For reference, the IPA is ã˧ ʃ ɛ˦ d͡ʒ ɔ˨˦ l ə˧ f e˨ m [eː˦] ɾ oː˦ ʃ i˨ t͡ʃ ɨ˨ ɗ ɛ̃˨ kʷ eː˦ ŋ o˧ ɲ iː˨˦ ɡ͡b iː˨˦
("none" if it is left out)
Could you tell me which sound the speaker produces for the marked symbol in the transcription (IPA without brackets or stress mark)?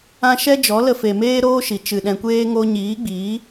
eː˦